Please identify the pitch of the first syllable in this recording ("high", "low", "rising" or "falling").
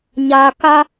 low